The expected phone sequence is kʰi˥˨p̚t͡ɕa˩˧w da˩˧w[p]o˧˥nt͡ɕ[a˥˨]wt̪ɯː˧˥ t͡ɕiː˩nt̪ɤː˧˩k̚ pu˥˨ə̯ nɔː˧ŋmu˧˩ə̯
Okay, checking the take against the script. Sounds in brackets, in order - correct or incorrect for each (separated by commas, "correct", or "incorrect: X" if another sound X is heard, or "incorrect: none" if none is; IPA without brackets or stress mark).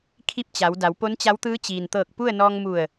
correct, incorrect: a˧˥